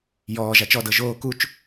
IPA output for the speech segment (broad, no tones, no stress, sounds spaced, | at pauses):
j ɔː ʒ a t͡ʃ ɔ d ɤ ʒ oː k u t͡ʃ